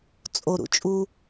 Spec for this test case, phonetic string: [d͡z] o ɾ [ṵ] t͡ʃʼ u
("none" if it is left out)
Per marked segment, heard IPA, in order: t͡sʼ, ṵ

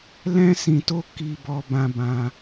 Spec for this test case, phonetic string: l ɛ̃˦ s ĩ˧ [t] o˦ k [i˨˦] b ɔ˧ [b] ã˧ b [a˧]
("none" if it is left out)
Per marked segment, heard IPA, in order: t, i˧, b, ã˧

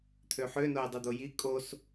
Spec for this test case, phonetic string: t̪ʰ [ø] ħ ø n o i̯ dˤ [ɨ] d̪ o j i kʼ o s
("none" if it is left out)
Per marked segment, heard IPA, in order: ø, ɨ

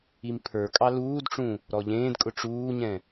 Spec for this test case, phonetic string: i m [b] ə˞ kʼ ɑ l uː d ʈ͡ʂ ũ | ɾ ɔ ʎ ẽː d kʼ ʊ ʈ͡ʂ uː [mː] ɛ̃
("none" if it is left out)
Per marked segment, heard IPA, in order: pʰ, ɲ

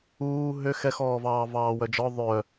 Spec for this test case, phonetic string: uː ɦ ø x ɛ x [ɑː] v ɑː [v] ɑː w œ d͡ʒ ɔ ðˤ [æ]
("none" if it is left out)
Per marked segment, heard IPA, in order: ɔː, v, œ

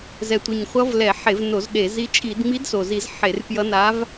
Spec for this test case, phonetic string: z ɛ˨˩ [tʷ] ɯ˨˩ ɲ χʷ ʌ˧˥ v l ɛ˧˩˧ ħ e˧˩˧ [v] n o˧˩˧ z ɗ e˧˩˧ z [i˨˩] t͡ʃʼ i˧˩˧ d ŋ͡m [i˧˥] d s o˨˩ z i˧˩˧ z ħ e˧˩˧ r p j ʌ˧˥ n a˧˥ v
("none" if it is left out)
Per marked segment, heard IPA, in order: tʷ, v, i˧˥, i˧˥

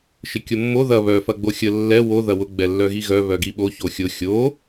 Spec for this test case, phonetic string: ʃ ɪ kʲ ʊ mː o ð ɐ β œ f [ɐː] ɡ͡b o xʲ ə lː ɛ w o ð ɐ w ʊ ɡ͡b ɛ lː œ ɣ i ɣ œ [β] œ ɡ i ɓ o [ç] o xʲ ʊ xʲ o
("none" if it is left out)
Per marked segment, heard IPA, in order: ɐ, β, ç

